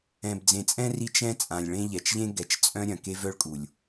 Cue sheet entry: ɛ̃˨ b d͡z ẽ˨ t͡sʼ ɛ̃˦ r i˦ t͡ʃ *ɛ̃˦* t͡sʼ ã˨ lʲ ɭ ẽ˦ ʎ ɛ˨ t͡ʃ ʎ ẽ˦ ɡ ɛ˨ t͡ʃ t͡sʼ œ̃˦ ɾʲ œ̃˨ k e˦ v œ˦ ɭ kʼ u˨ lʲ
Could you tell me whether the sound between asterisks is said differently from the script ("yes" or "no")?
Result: no